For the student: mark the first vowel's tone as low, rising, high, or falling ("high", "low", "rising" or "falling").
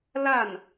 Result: falling